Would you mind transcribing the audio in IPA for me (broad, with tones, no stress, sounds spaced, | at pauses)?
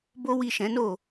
b o˦ w i˦˨ ʃ ɛ̃˨˦ n o˦˨